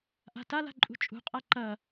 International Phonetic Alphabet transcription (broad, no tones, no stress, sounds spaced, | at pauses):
ʔ a̤ t a l a̤ ǃʼ ṳ t͡ʃʼ ṳ qʼ a ǃ ɐ